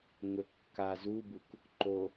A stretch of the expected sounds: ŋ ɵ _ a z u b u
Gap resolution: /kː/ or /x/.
kː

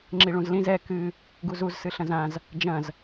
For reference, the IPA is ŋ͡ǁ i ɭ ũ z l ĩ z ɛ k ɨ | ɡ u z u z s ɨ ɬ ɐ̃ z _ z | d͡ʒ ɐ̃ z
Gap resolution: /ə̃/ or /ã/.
ã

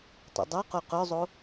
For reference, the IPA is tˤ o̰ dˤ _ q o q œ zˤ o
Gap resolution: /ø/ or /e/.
ø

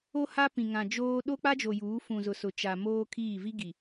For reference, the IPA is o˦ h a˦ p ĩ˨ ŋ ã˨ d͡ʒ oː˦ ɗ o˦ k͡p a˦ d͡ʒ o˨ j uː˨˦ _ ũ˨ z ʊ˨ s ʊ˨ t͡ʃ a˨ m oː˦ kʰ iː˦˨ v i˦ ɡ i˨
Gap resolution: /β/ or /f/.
f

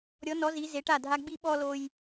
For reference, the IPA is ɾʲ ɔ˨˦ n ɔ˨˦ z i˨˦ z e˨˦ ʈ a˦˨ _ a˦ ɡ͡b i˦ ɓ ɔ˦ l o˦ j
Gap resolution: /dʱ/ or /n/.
dʱ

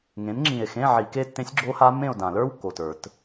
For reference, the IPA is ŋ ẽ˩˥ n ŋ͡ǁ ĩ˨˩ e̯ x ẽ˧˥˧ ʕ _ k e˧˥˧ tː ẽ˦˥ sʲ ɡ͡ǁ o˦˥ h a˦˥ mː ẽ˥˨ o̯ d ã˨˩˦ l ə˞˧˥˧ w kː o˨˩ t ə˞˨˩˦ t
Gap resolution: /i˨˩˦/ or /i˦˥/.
i˨˩˦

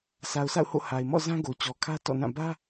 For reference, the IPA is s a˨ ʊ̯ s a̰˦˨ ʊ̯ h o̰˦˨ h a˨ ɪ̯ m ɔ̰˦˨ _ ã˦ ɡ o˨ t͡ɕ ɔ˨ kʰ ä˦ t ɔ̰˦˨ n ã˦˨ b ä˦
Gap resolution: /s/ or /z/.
z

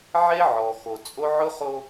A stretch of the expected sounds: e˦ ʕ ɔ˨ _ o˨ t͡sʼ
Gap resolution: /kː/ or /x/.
x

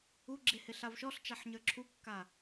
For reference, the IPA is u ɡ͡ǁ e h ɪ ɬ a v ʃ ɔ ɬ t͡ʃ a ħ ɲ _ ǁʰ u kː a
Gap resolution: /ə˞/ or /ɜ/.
ə˞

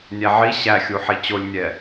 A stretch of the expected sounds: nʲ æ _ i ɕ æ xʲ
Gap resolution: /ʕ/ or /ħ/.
ʕ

